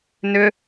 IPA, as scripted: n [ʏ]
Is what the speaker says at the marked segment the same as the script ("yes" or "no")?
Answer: yes